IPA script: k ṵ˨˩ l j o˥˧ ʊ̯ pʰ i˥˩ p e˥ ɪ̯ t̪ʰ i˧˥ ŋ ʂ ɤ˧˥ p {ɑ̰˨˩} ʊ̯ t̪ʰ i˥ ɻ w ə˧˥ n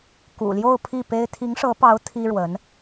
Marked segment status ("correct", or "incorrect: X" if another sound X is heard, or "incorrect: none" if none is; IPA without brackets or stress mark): incorrect: ɑ˧˥